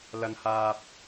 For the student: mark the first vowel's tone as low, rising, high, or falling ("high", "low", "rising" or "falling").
high